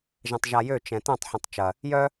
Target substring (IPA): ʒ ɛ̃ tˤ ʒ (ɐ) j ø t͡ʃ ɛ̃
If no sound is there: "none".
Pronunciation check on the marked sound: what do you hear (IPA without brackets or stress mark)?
a